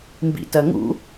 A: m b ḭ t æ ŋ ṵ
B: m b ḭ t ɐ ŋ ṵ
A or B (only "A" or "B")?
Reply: B